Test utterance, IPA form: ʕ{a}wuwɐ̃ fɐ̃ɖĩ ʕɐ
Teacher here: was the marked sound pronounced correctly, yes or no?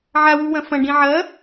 yes